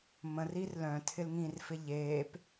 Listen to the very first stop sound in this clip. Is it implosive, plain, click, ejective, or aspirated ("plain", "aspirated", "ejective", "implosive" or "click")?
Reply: aspirated